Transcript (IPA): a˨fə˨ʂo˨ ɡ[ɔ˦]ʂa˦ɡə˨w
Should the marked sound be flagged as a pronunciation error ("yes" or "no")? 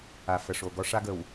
no